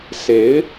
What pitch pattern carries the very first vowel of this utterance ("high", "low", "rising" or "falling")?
rising